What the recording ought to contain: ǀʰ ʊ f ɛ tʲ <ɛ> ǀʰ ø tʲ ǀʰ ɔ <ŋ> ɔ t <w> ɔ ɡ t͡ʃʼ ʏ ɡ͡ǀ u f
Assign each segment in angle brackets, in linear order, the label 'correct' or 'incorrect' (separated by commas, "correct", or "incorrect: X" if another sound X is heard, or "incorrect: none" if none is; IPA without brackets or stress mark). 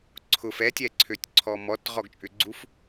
correct, incorrect: m, incorrect: ʁ